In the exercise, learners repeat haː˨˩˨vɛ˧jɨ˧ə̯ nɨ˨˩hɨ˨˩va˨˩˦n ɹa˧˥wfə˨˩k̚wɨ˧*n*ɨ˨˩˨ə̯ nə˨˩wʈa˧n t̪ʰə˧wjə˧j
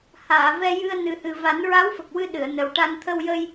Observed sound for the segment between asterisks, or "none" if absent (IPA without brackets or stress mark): ɗ